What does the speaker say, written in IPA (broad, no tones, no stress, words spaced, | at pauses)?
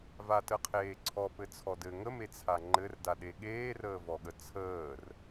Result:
vatəqʰeːǀʰɔ pɘt͡sʰɔdɘ ŋəmet͡sʰa ŋ͡ǃɘrdaɗe ɠeːrəːvɔɠə t͡sʰəːr